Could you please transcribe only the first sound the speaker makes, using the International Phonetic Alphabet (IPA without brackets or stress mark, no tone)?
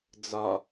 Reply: d͡z